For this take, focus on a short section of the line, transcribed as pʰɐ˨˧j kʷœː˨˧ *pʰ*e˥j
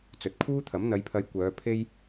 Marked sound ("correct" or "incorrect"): correct